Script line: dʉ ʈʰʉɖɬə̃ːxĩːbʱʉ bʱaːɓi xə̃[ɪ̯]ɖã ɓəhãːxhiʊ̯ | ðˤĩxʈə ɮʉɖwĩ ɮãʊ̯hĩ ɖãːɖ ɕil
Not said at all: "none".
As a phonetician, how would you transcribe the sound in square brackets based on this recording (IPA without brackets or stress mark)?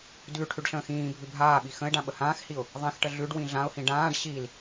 ɪ̯